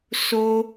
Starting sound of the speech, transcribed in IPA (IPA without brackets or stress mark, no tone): s